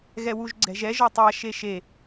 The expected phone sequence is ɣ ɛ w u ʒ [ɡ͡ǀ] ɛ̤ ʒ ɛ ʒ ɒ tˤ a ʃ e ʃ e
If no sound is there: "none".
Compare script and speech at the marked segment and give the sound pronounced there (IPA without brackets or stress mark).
ɡ͡ǀ